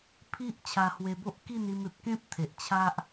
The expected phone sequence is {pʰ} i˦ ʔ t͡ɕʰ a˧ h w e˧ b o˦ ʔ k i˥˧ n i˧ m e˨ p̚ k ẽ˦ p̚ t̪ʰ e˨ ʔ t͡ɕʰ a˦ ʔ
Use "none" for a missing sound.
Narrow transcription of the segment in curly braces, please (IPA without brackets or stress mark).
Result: pʰ